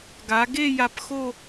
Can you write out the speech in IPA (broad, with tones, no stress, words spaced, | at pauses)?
ɡa˩˧ɡe˥˧ ja˧pxo˥˧